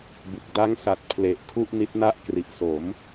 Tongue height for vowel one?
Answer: high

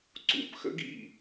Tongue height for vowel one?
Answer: high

